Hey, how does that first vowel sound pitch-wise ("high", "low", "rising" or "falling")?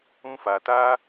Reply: high